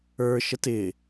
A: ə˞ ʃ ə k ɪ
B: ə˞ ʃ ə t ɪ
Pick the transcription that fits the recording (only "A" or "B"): B